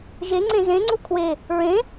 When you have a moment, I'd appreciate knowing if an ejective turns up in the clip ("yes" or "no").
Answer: no